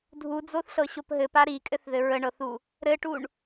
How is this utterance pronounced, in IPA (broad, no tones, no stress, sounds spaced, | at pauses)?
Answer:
dʱ u d͡z o θ ɬ ɤ ɕ o p ɦ ɘ p a ɾ i kʼ ɘ θ ð ɘ ɹ ə ɳ ɤ θ u | ɾ ɘ ʈ u ɳ